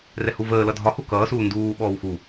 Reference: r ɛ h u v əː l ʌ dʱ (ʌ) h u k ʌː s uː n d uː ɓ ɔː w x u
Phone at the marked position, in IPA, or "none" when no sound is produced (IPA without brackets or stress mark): ɒ